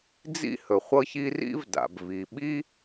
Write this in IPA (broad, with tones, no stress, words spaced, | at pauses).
d͡zḭ˥hɵ˩ χʷɤ˥çi˥ rḭ˥vda̰˩b vi˩ɓi˥